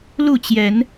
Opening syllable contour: falling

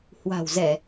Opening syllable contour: low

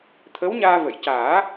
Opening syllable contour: rising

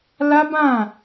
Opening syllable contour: high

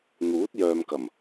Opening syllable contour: rising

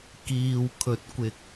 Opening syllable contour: low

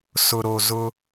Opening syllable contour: low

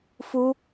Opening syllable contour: high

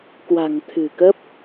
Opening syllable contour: low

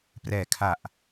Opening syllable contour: low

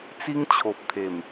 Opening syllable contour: high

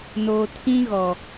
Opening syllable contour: low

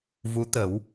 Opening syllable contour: rising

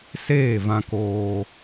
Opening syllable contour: falling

